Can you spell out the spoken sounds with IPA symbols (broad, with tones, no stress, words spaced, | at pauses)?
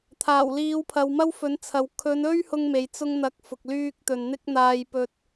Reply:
t̪ʰaː˨˩wliː˨˧w pʰɐ˨wmɐ˥wfɵ˨˥nt͡sʰɐ˨w kʰɵ˨˧nɵ˥ɥ hʊ˧ŋme˨j t͡sʊ˧ŋn̪ɐ˨˥k̚ fʊ˨k̚lyː˥k̚ t̪ɵ˨nn̪ɪ˥k̚ n̪aː˧j pɵ˧t̚